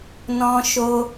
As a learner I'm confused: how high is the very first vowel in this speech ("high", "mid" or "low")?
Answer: mid